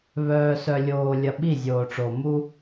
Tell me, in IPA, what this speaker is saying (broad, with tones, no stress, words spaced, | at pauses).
βœː˨sœ˨lʲoː˨lʲɐ˨ ɓi˦˨zʲoː˨ʈ͡ʂo˨ mu˦